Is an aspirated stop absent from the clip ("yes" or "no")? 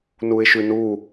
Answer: yes